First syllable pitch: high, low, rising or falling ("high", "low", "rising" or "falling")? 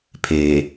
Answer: low